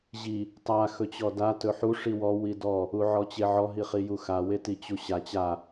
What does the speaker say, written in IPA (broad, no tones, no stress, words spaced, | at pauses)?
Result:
ʑi | tˤa xɵt͡ɕɔda tɵħu ʂiwɔ widɔ | uʕɔt͡ɕeʕɔ ɦiχijuxa wetit͡ɕuɕa t͡ɕa